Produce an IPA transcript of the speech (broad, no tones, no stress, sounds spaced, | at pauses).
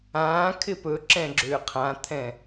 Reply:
ãː kʰ ɪ p ɵ ǁ ɛ̃ ɡ͡ǁ ʏː qʰ ã t̪ʰ ɛ̃